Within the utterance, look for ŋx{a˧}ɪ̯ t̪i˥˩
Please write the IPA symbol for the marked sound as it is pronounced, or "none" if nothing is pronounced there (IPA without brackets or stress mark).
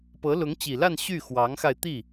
a˧